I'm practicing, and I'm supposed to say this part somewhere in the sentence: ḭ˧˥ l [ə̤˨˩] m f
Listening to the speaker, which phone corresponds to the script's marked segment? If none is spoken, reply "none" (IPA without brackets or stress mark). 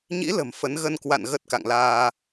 ə̤˨˩